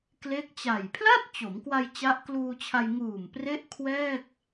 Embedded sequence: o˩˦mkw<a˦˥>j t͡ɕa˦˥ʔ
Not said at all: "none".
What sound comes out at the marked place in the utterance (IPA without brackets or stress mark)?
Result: a˧